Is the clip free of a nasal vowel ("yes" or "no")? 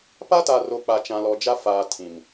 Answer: no